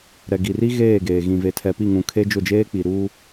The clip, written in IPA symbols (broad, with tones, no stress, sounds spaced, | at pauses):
ɾ ɛ˨ ɡ i˨ r i˦ ɣ eː˦˨ ɡ eː˨ ɣ ĩ˨ v e˨ tʰ ɛ˨ p i˦˨ ŋ ũ˨ kʰ e˦ d͡ʒ ʊ˦˨ d͡ʒ eː˦ k͡p i˨ ɾ u˦